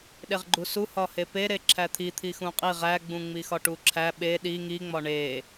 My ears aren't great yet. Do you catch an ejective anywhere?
yes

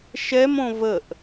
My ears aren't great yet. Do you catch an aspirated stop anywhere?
no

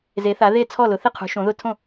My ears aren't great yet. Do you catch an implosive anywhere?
no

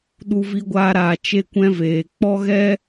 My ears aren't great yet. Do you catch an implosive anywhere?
yes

